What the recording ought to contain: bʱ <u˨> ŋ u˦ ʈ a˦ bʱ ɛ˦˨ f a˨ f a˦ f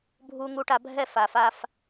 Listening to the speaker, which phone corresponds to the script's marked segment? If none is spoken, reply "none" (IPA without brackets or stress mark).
u˦